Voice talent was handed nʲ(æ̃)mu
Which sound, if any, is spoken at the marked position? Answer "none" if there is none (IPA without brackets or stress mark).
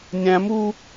æ̃